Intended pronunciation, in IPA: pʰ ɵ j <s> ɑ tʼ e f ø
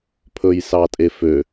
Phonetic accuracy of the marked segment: correct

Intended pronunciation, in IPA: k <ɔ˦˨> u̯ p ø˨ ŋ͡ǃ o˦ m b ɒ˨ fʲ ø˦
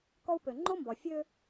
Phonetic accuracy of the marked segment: incorrect: ɔ˦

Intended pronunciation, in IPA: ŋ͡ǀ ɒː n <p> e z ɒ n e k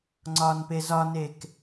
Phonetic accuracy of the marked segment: correct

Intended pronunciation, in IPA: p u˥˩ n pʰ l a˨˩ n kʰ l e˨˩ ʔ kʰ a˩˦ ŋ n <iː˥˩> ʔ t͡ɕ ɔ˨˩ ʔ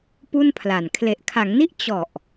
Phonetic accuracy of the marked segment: incorrect: i˥˩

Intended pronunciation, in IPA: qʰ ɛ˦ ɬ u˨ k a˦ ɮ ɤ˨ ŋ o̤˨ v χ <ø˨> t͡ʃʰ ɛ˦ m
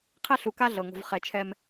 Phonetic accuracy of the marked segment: incorrect: ɛ˨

